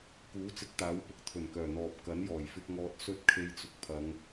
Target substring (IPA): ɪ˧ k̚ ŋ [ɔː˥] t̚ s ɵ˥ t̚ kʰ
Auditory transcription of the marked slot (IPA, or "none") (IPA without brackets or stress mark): ɔː˧